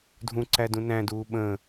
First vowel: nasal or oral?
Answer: nasal